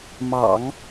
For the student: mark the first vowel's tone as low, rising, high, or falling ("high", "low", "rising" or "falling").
low